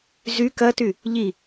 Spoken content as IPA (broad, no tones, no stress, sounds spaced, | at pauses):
z y k ɐ t y | ʎ i